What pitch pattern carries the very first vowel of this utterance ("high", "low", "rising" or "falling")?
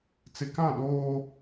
low